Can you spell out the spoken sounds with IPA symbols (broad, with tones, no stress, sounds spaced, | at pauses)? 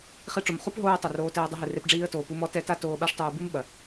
χ i˧ ʈ͡ʂ o˨ m χ u˦ p ɦ oː˦ ə̯ tˤ ɘ˨ r oː˧ t ɛː˧ dˤ ɐ˧ ɦ ɨ˨ r e˧ p ɖ͡ʐ iː˧ ə̯ t oː˨ p u˧ m ɔ˦ t ɛ˦ t a˦ t oː˧ ɓ a˦ ʂ tˤ uː˧ b ɨ˦ m ɓ ɐ˨